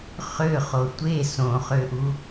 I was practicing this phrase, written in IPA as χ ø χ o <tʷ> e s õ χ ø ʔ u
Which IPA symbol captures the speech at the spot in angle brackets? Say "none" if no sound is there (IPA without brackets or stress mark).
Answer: tʷ